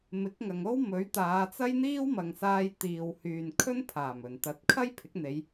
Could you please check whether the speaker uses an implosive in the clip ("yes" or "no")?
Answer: no